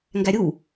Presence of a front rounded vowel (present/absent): absent